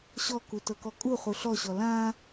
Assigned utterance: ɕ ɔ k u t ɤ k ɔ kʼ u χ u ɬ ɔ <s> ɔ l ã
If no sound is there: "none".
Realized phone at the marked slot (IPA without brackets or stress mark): ɕ